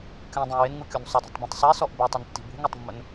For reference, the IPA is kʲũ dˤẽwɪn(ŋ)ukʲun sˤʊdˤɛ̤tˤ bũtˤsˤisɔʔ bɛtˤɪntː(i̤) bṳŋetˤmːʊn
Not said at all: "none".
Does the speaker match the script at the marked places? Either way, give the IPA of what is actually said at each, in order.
ŋ, i̤

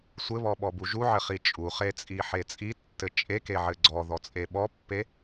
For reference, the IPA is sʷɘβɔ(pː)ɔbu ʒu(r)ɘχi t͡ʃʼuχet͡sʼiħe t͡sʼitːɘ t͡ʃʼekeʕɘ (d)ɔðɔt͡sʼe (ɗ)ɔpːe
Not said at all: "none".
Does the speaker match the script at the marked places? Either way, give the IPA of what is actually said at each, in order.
ɓ, ʕ, ɡ͡ǀ, ɓ

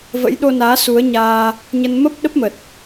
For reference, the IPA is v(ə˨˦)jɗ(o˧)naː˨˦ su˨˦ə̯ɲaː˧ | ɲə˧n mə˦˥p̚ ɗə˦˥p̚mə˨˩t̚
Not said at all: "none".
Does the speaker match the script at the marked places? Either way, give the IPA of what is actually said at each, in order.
ə̰˧˥, o˧

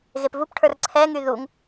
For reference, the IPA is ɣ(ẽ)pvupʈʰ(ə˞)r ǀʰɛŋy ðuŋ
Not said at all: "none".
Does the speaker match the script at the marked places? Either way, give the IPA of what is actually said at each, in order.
e, ə˞

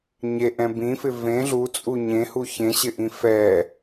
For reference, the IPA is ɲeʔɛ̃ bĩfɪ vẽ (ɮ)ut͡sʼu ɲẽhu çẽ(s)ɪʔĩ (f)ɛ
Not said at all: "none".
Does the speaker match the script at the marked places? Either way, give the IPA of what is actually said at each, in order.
ɮ, ɕ, f

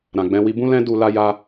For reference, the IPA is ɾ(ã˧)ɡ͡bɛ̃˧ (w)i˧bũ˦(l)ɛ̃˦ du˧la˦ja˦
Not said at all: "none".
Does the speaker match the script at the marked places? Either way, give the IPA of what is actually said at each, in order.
ã˨, w, l

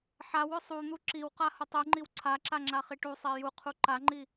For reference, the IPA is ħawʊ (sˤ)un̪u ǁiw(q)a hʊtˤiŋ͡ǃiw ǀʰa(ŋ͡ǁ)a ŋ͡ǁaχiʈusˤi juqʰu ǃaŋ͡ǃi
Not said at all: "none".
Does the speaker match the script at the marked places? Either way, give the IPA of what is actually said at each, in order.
sˤ, q, ǁ

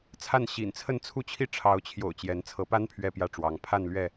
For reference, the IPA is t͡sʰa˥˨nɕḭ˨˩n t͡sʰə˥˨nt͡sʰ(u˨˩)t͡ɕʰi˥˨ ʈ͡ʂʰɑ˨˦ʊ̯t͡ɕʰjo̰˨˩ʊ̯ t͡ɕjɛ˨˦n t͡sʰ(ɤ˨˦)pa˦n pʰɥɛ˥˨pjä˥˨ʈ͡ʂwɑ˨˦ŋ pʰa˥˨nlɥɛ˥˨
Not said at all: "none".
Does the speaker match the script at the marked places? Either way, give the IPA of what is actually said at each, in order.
u˥˨, ɤ˨˦

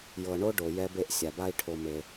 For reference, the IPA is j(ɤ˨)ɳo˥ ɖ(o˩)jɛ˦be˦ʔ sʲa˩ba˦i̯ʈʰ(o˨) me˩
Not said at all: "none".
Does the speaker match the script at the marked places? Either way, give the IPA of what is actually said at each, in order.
ɤ˨, o˩, o˨

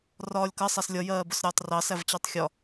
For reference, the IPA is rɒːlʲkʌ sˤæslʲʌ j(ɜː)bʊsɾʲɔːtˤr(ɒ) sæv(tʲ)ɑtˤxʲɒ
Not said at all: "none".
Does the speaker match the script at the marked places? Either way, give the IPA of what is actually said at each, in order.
ɜː, ɑ, t͡ɕ

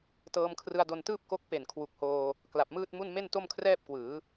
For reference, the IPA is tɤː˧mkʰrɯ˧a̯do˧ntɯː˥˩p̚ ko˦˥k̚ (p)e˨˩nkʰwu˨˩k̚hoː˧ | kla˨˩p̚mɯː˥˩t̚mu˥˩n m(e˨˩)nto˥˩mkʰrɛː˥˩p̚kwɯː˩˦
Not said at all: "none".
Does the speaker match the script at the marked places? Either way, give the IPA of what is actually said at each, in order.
p, e˥˩

